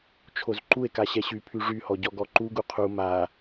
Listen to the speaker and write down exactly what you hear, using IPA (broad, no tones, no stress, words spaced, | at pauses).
t͡ʃʰozǃue̯ka ɕɛɕypʰy ʐyhɔ ɟɔɡɔǃuɡu qʰu ma